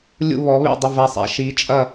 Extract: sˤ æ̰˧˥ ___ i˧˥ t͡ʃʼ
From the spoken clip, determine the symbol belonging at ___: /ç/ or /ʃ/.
ʃ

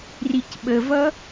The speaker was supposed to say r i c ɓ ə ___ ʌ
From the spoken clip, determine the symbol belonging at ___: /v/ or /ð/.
v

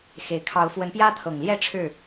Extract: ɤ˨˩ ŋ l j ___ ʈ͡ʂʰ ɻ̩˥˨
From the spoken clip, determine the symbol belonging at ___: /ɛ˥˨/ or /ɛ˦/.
ɛ˥˨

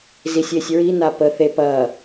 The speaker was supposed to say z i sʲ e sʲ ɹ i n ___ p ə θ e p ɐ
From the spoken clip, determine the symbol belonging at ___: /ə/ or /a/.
a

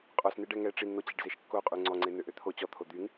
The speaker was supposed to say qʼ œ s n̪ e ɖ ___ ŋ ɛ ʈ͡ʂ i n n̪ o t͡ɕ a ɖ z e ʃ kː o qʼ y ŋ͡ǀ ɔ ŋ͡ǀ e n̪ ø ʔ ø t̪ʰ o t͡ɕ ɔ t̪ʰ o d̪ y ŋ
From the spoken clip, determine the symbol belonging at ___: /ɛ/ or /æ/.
ɛ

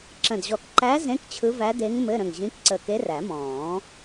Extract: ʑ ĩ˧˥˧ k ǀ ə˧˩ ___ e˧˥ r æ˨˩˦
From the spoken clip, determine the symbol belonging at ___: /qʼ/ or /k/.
k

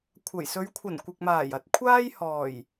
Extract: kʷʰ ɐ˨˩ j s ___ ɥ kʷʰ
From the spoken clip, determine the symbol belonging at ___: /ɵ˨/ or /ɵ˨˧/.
ɵ˨˧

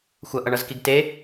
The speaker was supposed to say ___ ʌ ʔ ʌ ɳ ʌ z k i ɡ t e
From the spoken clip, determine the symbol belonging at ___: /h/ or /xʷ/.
xʷ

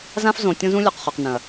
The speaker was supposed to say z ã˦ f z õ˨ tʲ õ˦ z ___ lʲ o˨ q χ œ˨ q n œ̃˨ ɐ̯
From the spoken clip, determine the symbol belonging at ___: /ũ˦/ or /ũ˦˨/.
ũ˦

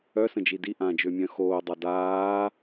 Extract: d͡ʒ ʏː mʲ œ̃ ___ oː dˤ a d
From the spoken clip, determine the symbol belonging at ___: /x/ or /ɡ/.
x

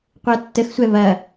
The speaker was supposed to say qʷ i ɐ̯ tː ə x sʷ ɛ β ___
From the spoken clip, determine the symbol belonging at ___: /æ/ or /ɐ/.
ɐ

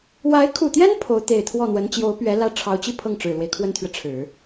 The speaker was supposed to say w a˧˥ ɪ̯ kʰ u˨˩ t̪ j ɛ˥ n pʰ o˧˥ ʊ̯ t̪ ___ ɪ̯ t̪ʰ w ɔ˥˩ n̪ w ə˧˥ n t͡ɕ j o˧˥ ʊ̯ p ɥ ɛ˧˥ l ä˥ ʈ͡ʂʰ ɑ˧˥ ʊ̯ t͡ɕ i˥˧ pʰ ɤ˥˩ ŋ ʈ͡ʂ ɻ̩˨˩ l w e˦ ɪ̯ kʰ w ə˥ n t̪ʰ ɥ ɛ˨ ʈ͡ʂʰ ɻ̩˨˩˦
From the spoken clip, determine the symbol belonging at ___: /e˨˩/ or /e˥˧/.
e˨˩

